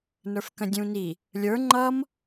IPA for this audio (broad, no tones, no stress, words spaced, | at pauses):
nə˞fkə̃dʲũni | lʲə˞ ŋ͡ǃʌm